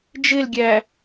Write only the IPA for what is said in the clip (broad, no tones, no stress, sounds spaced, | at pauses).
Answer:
d͡ʒ ɪ l ɡʲ æ